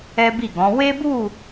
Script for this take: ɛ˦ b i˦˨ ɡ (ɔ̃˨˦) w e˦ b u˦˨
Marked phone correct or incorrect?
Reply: correct